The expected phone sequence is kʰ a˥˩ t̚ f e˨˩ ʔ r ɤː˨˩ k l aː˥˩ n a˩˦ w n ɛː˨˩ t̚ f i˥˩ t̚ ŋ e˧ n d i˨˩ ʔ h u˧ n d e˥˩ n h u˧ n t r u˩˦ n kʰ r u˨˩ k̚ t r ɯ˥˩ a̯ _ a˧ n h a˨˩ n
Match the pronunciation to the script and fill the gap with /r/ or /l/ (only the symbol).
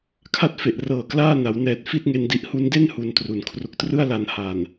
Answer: l